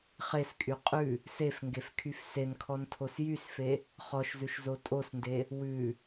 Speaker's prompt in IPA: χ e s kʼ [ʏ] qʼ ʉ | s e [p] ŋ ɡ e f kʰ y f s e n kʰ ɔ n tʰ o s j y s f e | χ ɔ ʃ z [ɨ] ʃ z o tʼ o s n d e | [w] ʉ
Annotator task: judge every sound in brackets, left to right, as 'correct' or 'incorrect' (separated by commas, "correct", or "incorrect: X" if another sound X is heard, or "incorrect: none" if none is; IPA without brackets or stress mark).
incorrect: y, incorrect: f, incorrect: ʉ, correct